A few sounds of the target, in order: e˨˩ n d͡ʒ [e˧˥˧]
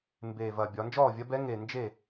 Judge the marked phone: incorrect: e˥˩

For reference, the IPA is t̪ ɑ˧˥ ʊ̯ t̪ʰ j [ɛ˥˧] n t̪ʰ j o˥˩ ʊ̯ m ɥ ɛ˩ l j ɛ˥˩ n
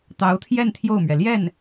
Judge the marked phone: correct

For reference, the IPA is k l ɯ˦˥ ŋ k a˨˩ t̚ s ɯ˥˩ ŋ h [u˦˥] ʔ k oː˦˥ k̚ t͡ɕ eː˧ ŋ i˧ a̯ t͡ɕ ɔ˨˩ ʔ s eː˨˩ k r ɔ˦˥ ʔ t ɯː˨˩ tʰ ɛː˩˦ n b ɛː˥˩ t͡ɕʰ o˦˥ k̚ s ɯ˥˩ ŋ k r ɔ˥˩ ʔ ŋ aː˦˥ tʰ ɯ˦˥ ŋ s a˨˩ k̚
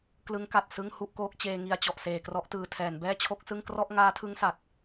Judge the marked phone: incorrect: u˥˩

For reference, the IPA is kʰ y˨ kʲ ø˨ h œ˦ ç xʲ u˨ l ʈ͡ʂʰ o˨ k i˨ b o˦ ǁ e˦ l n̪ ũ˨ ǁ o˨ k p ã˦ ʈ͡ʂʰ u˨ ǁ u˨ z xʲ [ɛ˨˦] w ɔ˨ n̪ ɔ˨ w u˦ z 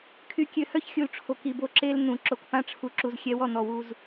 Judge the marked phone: correct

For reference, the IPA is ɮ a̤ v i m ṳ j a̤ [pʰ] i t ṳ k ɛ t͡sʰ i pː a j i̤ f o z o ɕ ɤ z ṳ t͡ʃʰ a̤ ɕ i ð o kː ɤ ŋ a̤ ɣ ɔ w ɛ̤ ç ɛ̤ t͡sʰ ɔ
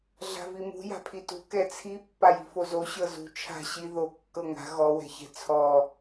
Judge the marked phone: correct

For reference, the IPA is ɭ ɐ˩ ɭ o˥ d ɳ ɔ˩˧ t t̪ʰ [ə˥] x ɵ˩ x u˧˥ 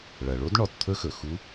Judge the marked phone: incorrect: ɵ˥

